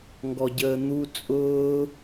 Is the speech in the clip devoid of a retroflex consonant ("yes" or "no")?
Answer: yes